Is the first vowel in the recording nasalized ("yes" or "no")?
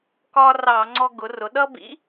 no